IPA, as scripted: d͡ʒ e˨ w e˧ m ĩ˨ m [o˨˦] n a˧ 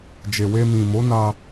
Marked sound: correct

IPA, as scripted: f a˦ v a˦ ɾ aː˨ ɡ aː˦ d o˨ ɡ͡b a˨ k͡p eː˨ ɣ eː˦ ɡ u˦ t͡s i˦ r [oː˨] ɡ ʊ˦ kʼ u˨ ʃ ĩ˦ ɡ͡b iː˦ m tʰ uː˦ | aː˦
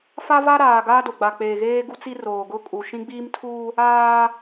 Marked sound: correct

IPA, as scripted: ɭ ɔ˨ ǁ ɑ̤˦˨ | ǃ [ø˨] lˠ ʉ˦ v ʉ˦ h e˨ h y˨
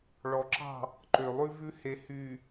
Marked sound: correct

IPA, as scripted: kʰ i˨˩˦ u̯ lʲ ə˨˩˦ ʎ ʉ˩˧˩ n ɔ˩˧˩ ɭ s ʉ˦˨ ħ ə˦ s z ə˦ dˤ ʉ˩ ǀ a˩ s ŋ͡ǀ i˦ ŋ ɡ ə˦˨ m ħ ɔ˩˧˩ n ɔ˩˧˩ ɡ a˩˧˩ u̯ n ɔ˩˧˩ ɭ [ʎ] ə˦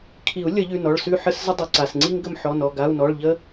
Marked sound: correct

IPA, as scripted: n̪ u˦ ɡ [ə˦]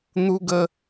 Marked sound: correct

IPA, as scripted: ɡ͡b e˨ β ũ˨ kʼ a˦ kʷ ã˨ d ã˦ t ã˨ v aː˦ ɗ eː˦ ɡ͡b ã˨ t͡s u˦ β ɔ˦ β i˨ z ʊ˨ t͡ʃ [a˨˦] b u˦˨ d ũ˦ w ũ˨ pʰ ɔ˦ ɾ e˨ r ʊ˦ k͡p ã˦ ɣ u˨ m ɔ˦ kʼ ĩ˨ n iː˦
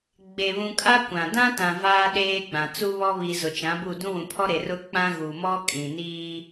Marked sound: incorrect: ã˨˦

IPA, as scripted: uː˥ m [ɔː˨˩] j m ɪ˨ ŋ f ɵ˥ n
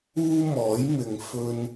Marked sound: incorrect: ɔː˨˥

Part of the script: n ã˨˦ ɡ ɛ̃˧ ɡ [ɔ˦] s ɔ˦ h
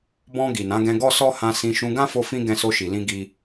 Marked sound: correct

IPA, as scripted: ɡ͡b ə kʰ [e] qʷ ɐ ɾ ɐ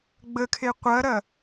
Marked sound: correct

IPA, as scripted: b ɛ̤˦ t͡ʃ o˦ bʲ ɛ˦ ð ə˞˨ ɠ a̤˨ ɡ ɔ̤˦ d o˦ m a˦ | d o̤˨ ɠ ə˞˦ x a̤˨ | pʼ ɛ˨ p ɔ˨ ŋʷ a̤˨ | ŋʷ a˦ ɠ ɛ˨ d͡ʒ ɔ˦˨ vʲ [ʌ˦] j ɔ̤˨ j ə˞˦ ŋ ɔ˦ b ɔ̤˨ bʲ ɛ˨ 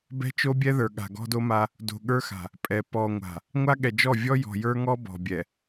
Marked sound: incorrect: ɔ˦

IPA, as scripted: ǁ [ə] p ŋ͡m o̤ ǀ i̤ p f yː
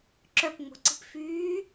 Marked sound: incorrect: œ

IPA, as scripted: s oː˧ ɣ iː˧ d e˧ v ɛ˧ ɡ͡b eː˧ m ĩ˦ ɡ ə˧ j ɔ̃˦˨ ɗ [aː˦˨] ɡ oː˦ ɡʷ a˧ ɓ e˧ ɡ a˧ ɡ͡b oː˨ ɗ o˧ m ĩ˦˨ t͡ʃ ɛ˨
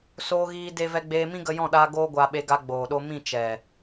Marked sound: incorrect: aː˧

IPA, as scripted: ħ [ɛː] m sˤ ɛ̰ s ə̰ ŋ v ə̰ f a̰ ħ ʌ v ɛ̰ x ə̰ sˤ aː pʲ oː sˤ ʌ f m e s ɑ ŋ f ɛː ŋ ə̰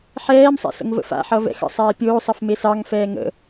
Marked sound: correct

